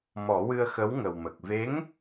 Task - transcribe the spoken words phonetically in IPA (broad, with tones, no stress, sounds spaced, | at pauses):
m ɔ˨˩˦ w ɨ˧ ə̯ x ə˧˥ w ŋ ə˨˩ w m ə˨˩ k̚ v e˧˥ ŋ